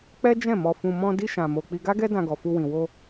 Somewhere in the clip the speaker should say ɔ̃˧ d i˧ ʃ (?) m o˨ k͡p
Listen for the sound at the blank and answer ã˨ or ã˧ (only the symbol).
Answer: ã˨